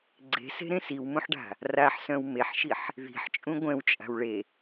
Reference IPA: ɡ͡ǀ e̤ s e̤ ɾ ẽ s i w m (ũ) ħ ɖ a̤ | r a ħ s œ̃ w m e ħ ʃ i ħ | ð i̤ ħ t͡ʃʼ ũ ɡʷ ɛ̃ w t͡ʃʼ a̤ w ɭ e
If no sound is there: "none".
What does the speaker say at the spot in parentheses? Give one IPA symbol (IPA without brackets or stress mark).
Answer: ũ